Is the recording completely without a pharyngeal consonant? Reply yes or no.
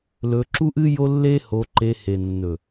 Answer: yes